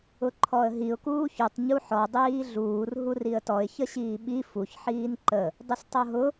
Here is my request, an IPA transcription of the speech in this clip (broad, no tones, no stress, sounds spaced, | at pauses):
ʊ ǃʰ ɔ ə̯ ɦ i ʊ̯ k uː ç y tˤ ɲ u ħ ɔ dˤ iː ɮ uː r ɦ u r i ə̯ t ɔ ɪ̯ ç ə ɕ iː ɓ i f u ç ħ iː n ǃ ə | dˤ ə s tˤ o ɦ ʊ